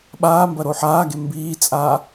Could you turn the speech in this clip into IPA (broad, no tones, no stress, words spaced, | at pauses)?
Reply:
ɓaː mbɐɾoħaːɡe mbiːt͡sʼaː